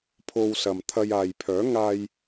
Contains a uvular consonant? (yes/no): no